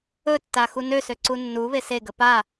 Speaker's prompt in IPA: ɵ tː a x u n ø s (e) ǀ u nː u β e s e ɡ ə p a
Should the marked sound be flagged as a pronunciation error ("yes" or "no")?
yes